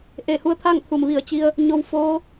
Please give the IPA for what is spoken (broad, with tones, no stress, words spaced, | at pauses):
ʔe˧˩hu˧˥ə̯t̪ʰa˥˨ŋ t̪ʰu˧˩mʋi˧˩ə̯t͡ɕi˧ə̯ | ɲo˧w foː˧˥